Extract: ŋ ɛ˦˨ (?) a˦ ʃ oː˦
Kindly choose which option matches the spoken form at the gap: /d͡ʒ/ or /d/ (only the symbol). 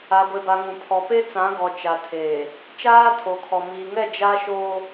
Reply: d͡ʒ